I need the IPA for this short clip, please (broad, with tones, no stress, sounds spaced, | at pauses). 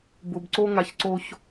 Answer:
b ʊ˨ b ǀ o˦ ŋ a˨ ç ǀ o˦ ç